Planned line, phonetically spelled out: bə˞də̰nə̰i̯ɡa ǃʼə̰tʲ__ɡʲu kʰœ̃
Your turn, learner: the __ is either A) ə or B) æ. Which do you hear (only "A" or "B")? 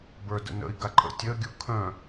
A